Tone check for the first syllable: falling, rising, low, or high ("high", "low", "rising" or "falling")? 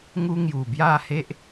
high